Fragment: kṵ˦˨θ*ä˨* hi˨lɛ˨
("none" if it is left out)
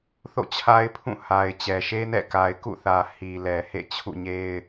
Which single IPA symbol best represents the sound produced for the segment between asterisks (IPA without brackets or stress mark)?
ä˨